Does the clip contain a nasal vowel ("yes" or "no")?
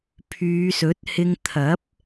no